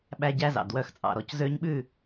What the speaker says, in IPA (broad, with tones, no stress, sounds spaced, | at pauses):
ɓ æ˦ ɟ æ˦ z ɑ̰˨ d w œ˦ x t͡sʼ ɑ̰˨ ɾ ɔ˨ c z ø˦ ɲ ɓ ʉ˦˨